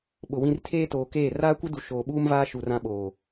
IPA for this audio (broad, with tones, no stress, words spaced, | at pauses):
ɓʊ˨ wĩ˨r tʰeː˦toː˨keː˦˨ raː˦kʷɪ˦du˨ ʃoː˨ɓuː˦mvaː˦ ʃu˨rã˦ɓoː˨